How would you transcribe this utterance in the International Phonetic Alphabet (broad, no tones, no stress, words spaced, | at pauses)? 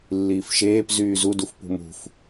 lːiːfʃeːp zyːzuduf pṳmṳf